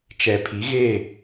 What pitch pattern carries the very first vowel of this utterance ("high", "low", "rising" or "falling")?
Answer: low